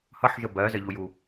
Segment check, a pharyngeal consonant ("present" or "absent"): present